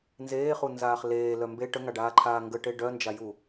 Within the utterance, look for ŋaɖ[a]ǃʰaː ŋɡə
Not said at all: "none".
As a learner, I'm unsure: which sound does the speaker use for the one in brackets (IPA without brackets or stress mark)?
aː